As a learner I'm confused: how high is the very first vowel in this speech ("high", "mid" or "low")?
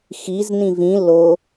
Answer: high